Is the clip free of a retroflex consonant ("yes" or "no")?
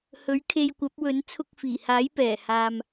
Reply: yes